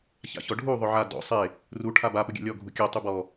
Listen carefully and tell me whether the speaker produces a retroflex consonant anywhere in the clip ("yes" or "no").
yes